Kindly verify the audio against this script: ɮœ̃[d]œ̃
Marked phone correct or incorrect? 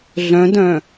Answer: correct